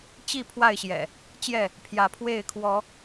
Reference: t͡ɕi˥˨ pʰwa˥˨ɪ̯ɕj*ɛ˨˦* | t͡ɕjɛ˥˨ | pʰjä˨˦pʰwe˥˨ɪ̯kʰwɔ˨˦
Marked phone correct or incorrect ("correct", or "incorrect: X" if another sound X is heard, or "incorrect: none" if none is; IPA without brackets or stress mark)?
incorrect: ɛ̰˨˩